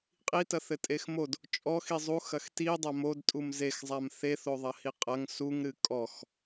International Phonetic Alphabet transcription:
qʼitɐθɘtʼex mod | t͡ʃʼɔxi zˤuxɐx tidˤa modtʼum zexzˤam θeθoðˤɐhi qʼɐŋ suŋɾɨ kʼɔx

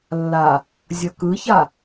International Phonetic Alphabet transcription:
lːa | zʲʌkɯça

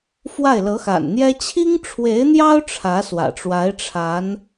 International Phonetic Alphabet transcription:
fwa˥˩ɪ̯lɤ˧˥xa̰˨˩nn̪jɛ˥ t͡ɕʰi˥ŋʈ͡ʂʰwe˧˥ɪ̯n̪jɑ˥ʊ̯ ʈ͡ʂʰä˧˥swä̰˨˩ʈ͡ʂwa˧˥ɪ̯ ʈ͡ʂʰa˧˥n

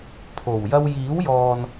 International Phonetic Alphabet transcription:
pʰo˨˩wjɐ˥w jiː˨˥wjɔː˨n

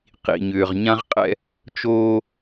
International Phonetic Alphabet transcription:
qḭ˨ɲʏː˨ʁɲã˦ʁqʼɛ̰˦ | t͡ʃoː˦

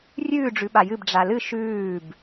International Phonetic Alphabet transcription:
rʲʉːɖ͡ʐʉ ɓajɨb ɖ͡ʐalɨ ʃʉːb

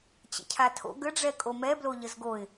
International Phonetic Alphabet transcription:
t͡ɕə̰cʰatʰo̰ ɡəɖ͡ʐɛkʼo mɛblo ʎəzɡoɪ̯

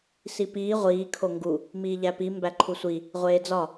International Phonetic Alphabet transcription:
sipiː ʁʷiː kʰoŋɡu | miːʎæpi mbæǃʰusʷi | ʁʷeːd͡zɒ

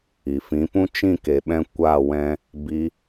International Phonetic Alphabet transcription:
i˨fĩ˨˦pũ˦ t͡ʃĩ˦˨ke˨ ɓɛ̃˦ kʷa˦˨wɛ̃˧ | bi˧

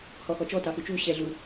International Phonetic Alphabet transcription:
hɔxɔt͡ʃɔ tɑxut͡ʃu ɕɛ ɮu

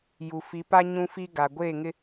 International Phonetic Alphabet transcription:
ju˨fi˨˦pa˦ ɲũ˦fi˦ ɡa˨ɡʷeː˦˨ŋɪ˦

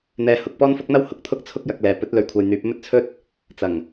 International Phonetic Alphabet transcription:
n̪ɛː˧hʊ˨˥k̚pɔː˥n fʊ˥k̚n̪ɐ˥w hʊ˨k̚ t̪ʰʊ˥k̚t͡sʰʊ˥k̚jɐ˨˥k̚lɛː˨ pɵ˨˥t̚lɵ˨ɥ kʷʰɐ˨jn̪yː˨˥p̚mɵ˥t̚t͡sʰɵ˥t̚ | t͡sɐ˨˩ŋ

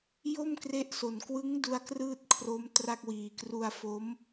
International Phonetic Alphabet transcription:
jo˥˩mkre˦˥ʔso˨˩n kwɯ˦˥ŋdu˧a̯ krɯː˥˩t̚ kʰro˦˥m tra˥˩k̚wiː˨˩ kru˧a̯fo˦˥m

